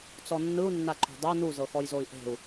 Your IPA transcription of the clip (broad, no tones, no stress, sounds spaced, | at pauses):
t͡s ɔ nː ɯ u̯ nː a ǃ o̤ dˤ ɤ n u z ɤ x ɔ j z o i̯ ʔ e̤ u̯